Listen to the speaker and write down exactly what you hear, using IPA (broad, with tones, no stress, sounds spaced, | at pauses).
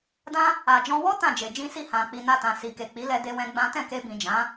d ã˧ | a˨ d͡ʒ ɔ̃˧ w ɔ˦ t ã˦˨ d͡ʒ e˨ d͡ʒ ĩ˧ s i˧ h ã˨ k͡p i˨ n a˧ t ã˨ s i˨ k e˨ k͡p i˨˦ l ɛ˧ d e˧ w ɛ̃˧ ɡ͡b ã˦ t ɛ̃˦˨ k e˧ b ĩ˨ d͡ʒ ã˨˦